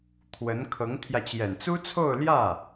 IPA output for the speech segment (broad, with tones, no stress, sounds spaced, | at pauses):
t̪ʰ w ə˧˥ n kʰ ɤ˧˥ ŋ t̪ʰ j ä˧ t͡ɕ j ɛ˨˩ n t͡s u˥ t͡sʰ o˥˧ ʊ̯ l j ä˥˩